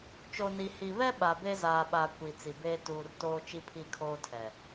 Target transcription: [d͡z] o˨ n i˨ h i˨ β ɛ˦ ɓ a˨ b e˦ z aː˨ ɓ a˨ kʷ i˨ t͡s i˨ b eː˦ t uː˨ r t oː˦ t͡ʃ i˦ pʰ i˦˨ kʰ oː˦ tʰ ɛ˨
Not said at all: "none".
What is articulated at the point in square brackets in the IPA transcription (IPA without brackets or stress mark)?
t͡ʃ